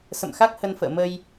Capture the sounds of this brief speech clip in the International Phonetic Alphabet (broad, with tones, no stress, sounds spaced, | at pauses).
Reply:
s ə̰˧˨ m x a˦˥ k̚ h ə˧ n f ə̰ː˧˨ m ə˧ j